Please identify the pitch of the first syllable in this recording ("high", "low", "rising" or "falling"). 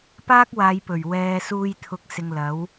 high